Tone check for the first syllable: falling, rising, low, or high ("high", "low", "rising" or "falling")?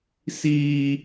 high